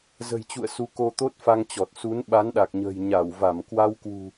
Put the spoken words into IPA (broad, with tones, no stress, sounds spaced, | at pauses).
z ə̤˨˩ j t͡ɕ ṵ˧˨ ə̯ s u˨˦ k o˧ t̪ o˦˥ t̚ f a˧ ŋ t͡ɕ ɔ˨˩ t̚ s u˨˦ n ɓ a˨˦ n ɗ a˨˩ k̚ ɲ ə̤ː˨˩ j ɲ a˧˩ w v a˧˩ m k w a˧ w k w ṳ˨˩